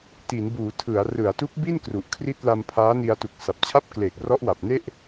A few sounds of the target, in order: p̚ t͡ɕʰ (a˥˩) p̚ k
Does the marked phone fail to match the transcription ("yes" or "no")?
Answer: no